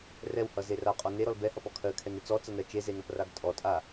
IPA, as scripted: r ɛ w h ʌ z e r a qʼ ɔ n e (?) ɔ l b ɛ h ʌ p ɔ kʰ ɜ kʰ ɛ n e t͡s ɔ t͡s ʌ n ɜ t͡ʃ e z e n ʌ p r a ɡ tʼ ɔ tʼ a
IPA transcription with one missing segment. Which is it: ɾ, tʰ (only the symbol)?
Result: ɾ